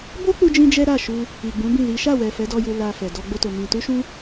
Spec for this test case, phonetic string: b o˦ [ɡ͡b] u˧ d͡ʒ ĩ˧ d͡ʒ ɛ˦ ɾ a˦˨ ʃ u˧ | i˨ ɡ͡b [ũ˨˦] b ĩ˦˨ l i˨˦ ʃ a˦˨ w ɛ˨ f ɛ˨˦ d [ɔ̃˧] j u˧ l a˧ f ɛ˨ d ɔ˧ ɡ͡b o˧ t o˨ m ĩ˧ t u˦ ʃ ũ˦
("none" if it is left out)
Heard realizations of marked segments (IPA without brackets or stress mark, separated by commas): k͡p, ũ˨˦, ɔ˧